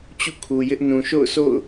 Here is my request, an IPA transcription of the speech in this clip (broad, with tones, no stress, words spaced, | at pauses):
t͡ɕṵ˦˨kʰu˨jɪ˦ʔ nũ˨ʃo̰˦˨ʊ̯so̰˦˨ʊ̯